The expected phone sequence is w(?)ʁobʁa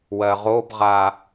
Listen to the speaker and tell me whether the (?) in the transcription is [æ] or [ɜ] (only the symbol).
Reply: ɜ